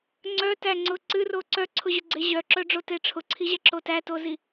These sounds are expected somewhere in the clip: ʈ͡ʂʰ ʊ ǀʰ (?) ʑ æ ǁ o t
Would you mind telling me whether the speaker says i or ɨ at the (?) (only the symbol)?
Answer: i